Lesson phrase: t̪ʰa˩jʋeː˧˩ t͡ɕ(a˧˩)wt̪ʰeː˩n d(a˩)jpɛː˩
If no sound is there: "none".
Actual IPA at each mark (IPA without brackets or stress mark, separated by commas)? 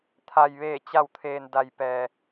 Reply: a˧˩, a˩